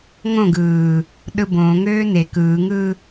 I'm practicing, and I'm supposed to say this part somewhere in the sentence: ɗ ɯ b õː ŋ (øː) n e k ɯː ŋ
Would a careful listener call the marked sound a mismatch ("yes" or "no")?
no